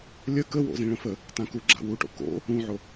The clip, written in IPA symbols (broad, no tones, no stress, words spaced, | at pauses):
lʲə kəwo̰zĩ ɭə̃fə | tãku ɡ͡ǁa̰wuʈo̰ ko̰ | ũʕo